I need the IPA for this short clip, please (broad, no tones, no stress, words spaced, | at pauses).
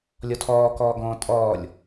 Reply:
lʲɔtʰɔː kɔːɡɔ̃ːtʼɔːlʲ